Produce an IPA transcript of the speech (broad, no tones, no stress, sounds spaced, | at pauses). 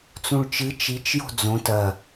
t͡s ũ ɭ t͡ʃ ɨ t͡ʃ i t͡ʃ j o̤ d͡z õ t ɐ